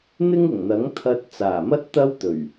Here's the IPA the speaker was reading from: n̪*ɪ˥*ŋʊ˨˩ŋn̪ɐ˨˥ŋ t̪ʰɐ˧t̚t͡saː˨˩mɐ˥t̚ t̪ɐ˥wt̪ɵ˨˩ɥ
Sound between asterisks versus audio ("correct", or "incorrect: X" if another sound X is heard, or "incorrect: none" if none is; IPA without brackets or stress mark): correct